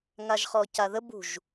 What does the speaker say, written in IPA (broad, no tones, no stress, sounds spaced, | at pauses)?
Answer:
ŋ a ʒ χ ɔ c a ð ə b ṳ ʒ